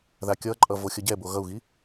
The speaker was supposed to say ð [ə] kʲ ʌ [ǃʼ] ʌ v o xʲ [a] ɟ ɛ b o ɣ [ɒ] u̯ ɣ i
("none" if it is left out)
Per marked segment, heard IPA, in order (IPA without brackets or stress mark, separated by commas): a, ǃʼ, ʌ, ʌ